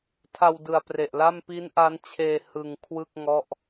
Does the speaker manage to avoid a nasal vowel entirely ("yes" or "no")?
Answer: yes